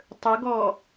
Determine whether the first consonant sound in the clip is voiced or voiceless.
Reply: voiceless